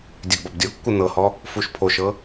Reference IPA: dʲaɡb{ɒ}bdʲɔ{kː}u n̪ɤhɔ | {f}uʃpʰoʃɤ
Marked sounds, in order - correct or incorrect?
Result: correct, correct, correct

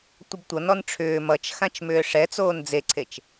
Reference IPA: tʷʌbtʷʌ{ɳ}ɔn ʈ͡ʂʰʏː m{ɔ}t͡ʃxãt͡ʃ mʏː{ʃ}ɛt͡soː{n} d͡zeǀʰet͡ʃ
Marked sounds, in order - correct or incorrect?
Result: incorrect, incorrect, incorrect, correct

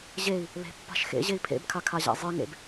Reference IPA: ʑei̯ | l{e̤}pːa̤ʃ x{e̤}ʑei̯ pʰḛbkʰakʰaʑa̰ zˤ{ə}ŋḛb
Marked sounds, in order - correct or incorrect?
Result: correct, incorrect, incorrect

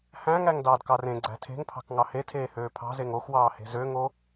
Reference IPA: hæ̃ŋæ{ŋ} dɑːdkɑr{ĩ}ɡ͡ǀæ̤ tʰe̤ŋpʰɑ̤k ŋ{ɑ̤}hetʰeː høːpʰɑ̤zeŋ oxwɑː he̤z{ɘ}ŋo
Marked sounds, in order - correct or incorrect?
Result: correct, incorrect, incorrect, incorrect

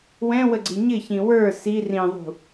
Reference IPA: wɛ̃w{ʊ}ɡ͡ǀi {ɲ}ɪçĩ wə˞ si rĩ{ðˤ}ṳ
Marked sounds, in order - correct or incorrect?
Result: incorrect, correct, correct

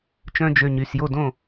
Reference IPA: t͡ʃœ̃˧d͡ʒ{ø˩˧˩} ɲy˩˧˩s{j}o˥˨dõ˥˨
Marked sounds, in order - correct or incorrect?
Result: correct, correct

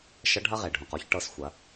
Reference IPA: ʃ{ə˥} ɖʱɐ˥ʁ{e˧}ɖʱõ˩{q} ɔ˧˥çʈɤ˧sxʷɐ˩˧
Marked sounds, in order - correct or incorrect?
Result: incorrect, incorrect, correct

